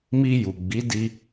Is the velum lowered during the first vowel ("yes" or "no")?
no